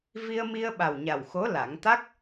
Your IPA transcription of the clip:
vi˧ə̯mi˧ə̯ɓa˨˩wɲa˨˩w xo˧˥ la˨˩˦ŋ t̪a˦˥k̚

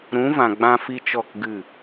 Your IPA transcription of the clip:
ɾũ˨˦vã˨ ɡ͡bã˧fi˧ t͡ʃɔ˦˨kɡɨ˦˨

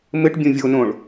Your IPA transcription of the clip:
mɘʈ bʲõvʲonõɭ

